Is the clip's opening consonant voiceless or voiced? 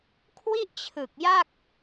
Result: voiceless